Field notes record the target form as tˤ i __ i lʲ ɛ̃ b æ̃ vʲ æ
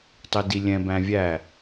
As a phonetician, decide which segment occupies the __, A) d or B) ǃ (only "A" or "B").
A